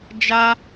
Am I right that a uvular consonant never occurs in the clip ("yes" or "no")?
yes